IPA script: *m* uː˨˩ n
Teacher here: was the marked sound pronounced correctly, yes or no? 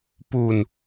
no